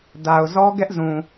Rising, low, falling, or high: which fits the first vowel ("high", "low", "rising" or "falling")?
low